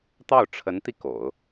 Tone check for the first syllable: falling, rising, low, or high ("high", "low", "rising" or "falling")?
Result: falling